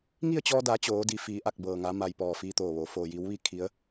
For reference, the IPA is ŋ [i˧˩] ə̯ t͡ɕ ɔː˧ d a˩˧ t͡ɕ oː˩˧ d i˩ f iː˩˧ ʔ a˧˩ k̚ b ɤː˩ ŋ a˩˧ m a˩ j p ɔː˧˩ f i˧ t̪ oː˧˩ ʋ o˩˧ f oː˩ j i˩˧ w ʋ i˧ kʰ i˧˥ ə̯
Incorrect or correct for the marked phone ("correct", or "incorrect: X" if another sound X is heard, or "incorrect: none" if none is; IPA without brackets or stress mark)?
incorrect: i˥˨